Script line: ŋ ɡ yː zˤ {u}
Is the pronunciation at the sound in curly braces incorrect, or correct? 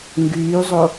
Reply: incorrect